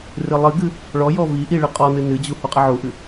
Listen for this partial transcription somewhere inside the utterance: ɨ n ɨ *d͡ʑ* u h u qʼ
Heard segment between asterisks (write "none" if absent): d͡ʑ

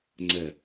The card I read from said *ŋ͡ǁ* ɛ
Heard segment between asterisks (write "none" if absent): ŋ͡ǀ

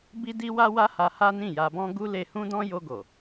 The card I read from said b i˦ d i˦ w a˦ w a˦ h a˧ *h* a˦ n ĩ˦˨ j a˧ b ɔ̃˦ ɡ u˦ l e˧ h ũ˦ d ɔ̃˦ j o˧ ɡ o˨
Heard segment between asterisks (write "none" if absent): h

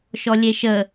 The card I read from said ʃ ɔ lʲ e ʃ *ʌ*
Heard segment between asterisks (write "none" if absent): ə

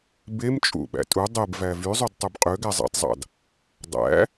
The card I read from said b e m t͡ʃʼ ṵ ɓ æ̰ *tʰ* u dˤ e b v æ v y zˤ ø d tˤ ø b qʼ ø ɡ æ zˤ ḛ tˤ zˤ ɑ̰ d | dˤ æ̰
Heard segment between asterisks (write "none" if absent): tʼ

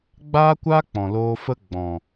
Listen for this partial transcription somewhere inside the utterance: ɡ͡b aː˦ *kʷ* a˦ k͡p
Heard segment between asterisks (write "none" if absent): kʷ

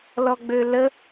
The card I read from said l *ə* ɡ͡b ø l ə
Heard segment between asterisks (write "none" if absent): ɔ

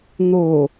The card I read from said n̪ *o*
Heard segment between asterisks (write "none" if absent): o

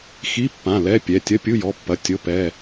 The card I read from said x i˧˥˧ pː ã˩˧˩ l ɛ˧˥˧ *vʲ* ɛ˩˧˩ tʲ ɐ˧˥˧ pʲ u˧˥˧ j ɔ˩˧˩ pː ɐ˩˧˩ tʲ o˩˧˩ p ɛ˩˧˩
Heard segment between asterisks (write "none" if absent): pʲ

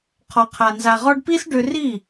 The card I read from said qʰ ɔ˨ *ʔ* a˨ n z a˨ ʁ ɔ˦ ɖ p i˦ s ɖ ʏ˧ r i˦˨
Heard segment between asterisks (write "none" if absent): qʰ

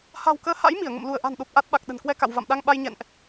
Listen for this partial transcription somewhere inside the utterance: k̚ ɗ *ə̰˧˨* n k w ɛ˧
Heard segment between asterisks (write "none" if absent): ə̤˨˩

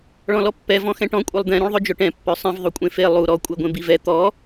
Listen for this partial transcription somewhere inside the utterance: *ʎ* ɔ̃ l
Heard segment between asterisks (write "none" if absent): ɭ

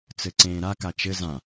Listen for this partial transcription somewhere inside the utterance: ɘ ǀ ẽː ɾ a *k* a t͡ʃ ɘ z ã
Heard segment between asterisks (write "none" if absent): k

